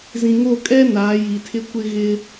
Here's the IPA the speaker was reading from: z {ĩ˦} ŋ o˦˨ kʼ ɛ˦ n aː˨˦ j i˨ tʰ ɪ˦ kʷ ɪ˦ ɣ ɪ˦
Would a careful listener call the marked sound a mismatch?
yes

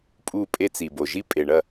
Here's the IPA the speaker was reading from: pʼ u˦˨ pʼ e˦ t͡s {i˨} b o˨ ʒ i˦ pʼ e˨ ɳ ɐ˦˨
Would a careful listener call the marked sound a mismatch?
no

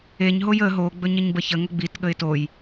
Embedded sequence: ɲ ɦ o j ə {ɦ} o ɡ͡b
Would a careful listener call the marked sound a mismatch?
no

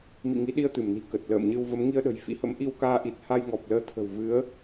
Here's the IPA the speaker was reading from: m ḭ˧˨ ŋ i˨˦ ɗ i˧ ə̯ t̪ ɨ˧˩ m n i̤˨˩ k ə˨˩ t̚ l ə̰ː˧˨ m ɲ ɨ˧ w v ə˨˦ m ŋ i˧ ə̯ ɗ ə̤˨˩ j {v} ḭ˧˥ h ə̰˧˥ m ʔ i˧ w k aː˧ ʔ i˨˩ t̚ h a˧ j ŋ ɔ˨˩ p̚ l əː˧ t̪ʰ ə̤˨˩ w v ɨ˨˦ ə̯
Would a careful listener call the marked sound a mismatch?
yes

